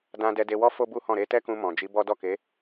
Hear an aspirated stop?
no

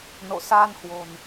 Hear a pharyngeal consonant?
no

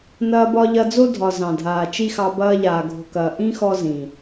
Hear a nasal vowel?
yes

